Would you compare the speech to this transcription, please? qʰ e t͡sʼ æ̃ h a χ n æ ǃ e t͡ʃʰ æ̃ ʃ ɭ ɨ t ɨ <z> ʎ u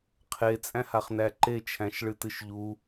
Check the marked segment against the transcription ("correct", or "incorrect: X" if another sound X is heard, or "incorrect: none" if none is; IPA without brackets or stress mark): incorrect: ʃ